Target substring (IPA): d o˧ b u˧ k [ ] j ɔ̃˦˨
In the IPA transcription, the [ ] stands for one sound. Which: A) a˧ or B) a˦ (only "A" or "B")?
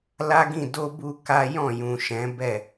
B